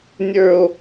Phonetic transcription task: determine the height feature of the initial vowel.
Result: mid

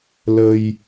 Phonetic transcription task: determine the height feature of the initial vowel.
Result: mid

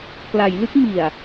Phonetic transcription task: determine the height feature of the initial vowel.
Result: low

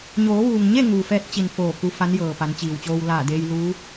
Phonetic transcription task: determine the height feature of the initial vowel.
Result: mid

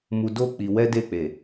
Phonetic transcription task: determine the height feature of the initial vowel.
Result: high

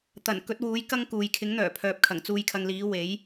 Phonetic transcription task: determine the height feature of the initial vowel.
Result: low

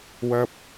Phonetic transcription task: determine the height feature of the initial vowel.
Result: low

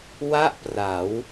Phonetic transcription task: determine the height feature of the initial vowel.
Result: low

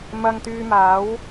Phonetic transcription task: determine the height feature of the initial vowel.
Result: low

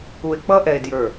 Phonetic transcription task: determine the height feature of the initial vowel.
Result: high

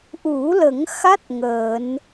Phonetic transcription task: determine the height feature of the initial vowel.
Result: high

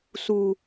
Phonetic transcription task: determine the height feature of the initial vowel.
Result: high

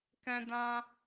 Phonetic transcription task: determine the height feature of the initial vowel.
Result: mid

